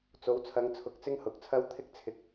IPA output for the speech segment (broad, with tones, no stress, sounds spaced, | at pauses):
t͡s o˨˥ w t͡sʰ ɐ˨˧ ŋ t͡sʰ ʊ˨ k̚ t͡s ɪ˥ ŋ h ʊ˨ k̚ t͡sʰ ɐ˥ w t̪ʰ ɪ˥ k̚ t͡sʰ ɪ˧ k̚